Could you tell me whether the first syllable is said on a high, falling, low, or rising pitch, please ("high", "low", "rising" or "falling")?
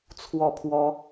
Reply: falling